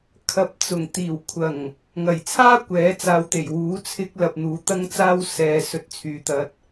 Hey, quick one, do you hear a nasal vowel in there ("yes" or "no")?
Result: no